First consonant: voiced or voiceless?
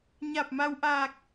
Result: voiced